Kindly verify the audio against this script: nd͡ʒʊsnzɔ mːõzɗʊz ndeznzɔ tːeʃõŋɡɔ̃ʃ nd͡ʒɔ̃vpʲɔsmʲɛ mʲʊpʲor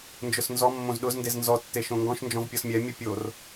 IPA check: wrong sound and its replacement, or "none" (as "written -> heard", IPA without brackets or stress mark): none